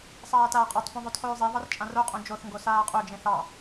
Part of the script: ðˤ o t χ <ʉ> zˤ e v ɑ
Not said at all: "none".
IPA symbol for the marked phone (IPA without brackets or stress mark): ʉː